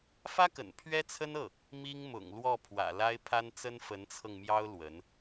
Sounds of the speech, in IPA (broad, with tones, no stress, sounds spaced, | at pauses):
f ä˥ k ə̰˨˩ n pʰ ɥ ɛ˥ t͡sʰ ə˥ n ɤ˥˩ | m i˥ ŋ m ʊ̰˨˩ ŋ l w ɔ˥˩ pʰ w ä̰˨˩ l a˥ ɪ̯ pʰ a˥ n t͡s ə˥ n f ə˧˥ n t͡sʰ ɤ˧ ŋ m j ɑ˥ ʊ̯ l w ə˧˥ n